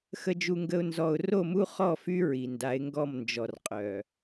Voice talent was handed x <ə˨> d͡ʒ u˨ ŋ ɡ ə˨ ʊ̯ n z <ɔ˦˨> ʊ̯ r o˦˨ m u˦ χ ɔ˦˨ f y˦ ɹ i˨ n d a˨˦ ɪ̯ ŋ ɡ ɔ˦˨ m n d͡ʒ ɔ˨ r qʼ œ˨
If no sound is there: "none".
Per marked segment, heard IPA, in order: ə˨, ɔ˨

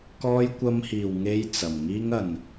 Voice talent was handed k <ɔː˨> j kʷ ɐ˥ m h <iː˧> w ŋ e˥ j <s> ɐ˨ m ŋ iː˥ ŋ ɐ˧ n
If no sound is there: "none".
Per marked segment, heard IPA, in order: ɔː˥, iː˧, t͡s

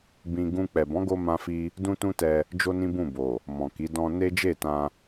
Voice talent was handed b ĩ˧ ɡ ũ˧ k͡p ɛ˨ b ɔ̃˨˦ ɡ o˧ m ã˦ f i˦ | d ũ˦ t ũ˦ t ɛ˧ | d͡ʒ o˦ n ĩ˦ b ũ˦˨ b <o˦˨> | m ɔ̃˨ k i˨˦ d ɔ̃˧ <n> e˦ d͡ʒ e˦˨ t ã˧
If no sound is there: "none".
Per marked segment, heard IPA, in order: o˨, n

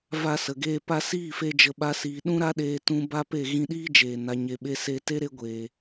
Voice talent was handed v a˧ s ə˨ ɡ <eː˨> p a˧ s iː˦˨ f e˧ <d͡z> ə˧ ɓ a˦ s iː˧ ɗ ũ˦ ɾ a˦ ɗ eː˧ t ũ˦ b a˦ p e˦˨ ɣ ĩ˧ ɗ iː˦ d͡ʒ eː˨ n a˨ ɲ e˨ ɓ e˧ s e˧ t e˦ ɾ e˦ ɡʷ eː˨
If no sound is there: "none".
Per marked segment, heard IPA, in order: eː˧, d͡ʒ

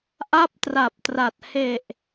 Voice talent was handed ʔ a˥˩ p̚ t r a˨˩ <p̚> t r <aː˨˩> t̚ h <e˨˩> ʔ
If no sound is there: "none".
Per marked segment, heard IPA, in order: p̚, a˨˩, e˨˩

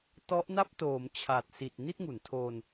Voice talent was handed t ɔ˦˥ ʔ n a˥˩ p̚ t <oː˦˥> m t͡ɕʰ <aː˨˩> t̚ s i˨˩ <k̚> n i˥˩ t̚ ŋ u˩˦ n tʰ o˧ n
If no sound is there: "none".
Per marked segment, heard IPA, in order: oː˩˦, aː˨˩, t̚

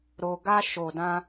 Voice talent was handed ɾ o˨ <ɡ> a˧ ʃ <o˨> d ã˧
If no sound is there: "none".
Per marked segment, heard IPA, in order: ɡ, o˨

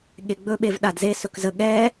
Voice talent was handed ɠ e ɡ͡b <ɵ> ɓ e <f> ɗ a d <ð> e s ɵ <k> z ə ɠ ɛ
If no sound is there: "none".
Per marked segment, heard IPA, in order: ɵ, v, z, k

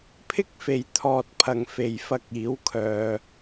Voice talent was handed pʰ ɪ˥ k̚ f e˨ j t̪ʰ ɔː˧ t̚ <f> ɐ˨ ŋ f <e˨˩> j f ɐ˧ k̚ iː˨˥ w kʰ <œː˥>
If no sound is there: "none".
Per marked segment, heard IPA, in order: pʰ, e˨˩, œː˨

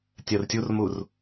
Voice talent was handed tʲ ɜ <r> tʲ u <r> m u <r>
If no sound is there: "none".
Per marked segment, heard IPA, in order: r, r, r

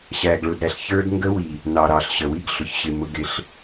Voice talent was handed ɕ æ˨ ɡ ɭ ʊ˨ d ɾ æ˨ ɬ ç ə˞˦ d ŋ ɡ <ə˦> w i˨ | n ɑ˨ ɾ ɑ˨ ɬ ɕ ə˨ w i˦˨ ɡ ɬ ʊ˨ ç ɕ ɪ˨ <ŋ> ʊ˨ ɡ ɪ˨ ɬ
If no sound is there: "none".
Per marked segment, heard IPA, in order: ə˦, m

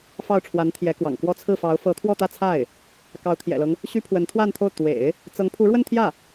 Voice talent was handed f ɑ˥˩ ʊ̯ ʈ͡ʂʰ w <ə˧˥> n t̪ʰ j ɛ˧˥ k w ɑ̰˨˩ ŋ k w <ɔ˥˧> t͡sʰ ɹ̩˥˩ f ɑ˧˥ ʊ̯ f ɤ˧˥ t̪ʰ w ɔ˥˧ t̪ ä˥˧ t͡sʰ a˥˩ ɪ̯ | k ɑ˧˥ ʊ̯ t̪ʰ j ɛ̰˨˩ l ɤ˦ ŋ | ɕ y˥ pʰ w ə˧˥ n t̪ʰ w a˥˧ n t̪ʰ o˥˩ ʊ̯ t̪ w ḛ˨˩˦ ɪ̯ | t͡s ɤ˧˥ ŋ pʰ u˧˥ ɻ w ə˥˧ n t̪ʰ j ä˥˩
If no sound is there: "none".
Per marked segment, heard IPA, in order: a˧˥, ɔ˥˧

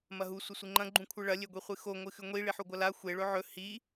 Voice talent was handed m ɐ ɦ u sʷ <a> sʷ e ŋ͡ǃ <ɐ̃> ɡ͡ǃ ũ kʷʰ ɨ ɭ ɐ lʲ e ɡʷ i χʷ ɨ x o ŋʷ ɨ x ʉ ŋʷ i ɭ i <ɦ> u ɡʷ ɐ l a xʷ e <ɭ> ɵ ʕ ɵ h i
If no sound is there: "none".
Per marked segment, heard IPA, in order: ɐ, ɐ̃, ħ, ɭ

